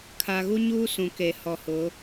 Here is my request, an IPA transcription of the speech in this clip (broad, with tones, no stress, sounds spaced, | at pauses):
kʰ a˨ ɣ u˦ ɲ uː˦ s ũ˨ k e˨ h ɔ˨ h ʊ˨˦